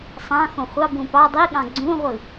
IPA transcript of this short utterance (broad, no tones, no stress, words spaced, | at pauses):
sˤɑ̃ xõχʷɑbũ pɑ dˤiɠɑ̃ ɡ͡ǀũʁʷɯ